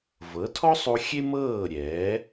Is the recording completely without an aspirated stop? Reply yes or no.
no